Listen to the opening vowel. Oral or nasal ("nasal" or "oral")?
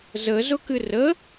oral